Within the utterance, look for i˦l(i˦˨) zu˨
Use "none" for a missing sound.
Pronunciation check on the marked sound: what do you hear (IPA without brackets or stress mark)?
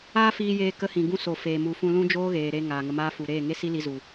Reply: i˧